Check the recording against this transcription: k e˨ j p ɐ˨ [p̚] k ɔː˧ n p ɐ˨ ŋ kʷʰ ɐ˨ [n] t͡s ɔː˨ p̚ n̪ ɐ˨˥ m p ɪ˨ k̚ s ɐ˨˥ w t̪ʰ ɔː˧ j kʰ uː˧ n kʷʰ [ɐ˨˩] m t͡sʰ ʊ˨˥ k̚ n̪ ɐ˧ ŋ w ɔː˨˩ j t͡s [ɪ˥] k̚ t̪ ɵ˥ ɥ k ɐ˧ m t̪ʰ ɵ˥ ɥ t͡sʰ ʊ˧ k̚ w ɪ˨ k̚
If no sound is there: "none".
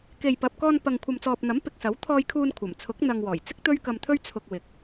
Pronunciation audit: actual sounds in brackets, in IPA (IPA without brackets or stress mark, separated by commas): p̚, m, ɐ˨˩, ɪ˥